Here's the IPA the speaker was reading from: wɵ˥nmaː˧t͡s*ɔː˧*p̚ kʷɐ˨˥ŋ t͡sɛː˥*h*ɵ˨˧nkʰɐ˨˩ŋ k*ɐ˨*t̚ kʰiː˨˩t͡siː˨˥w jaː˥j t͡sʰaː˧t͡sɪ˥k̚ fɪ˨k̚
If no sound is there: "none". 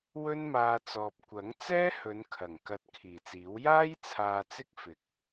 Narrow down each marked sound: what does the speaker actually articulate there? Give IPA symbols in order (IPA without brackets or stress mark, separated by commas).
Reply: ɔː˨, h, ɐ˨